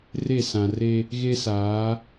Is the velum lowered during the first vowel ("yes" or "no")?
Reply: no